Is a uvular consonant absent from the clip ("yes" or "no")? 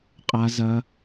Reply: no